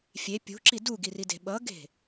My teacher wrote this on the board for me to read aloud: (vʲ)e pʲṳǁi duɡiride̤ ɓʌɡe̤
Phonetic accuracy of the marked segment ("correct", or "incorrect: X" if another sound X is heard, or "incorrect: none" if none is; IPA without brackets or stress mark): incorrect: fʲ